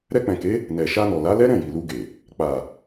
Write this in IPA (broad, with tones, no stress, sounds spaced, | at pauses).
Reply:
ɾ ɛ˧ k͡p ɛ̃˨ k e˨˦ | n ɛ˨ ʃ a˧ n ɔ˨ l a˨˦ l ɛ˦ ɾ ɛ̃˦˨ j i˨ l u˧ ɡ e˨ | k͡p a˨